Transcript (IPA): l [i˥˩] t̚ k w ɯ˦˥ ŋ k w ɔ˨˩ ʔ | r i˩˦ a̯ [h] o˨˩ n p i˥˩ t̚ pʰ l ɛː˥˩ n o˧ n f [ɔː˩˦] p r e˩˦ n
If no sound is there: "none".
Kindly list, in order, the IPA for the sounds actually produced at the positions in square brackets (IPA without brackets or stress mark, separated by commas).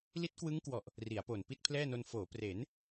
i˦˥, p, oː˩˦